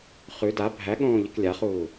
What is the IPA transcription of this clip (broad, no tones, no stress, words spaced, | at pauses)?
χʉ da bʱæɠõːʎɨk lʲaχuː